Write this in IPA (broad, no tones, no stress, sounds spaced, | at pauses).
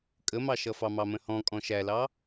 kʼ ə m ɑ ʃ ʌ f ɑ m ɑ m ə̃ h ɔ̃ kʼ ɔ̃ ʃ æ l ɑ